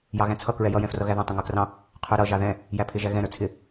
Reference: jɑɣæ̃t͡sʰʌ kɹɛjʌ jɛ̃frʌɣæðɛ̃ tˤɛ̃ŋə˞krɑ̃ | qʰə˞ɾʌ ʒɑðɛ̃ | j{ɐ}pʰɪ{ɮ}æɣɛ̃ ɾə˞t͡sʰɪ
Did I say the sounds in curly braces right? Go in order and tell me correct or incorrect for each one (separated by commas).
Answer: incorrect, incorrect